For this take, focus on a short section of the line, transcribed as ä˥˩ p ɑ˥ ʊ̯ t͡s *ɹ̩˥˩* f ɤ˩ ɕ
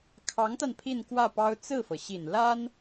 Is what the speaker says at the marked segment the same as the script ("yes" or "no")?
yes